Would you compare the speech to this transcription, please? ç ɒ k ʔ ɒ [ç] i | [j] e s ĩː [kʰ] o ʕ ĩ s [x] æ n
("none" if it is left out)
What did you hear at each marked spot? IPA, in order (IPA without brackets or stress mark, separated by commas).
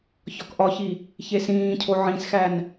ç, ç, cʰ, x